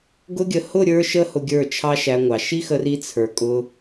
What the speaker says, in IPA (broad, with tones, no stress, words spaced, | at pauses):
ɡʊ˧ɡʲə˨ hʊ˦˨ ɾʲə˞˦ʃə˦hʊ˧ ɡʲə˞˦˨ t͡ʃʰɑ˦ʃæ˧ŋʷɑ˨ ʃi˦xə˧ri˧ t͡sʰə˞˨kʼʊ˧